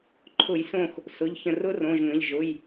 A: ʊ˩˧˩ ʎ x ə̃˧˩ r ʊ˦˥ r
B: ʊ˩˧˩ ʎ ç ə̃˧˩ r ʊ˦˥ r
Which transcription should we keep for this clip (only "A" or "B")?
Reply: B